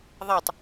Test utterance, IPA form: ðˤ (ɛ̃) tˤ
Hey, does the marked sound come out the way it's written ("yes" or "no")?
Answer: no